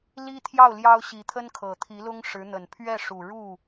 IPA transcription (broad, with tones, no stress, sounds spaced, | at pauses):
l i˥ t̪ʰ j ɑ˥˩ ʊ̯ l j ɑ˥ ʊ̯ ɕ i˧˥ t̪ʰ ə˥ n kʰ ɤ˨˩ t̪ʰ i˧˥ l ʊ˥ ŋ ʂ ɻ̩˧˥ n̪ ə˨˩ n pʰ ɥ ɛ˥˩ ʂ u˨˩ ɻ u˥˩